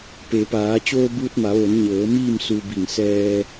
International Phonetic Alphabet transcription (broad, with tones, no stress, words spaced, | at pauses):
pe˩˧paː˩˧ t͡ɕoː˧buː˧t̚ma˩˧ʋo˩˧n ɲɤː˩˧ miː˥˨msu˧bi˧˩ŋ sɛː˧